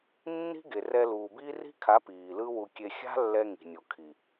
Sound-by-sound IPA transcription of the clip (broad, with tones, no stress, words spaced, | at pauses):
nːi̤˦ ɡe˨rɛ˧luː˨biː˦ ri̤˦kʰa˨˦ piː˨lɯ˦wu˧kʲe˧ xʲa̤˦lːɛ˧ ŋi̤˨nʲo˨kʰi˨